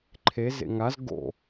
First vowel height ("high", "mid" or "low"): mid